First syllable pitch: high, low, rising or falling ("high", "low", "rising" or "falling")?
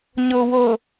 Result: low